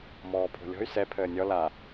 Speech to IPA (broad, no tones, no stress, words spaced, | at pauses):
mɔːpʰo̤lʲɔ̤y̯ sɛ pʰəːnʲɔ la